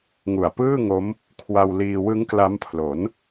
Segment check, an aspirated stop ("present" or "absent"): present